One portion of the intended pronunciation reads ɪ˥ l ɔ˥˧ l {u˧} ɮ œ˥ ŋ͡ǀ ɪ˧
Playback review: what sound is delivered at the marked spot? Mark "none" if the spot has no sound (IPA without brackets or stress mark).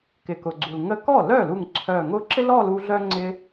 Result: u˧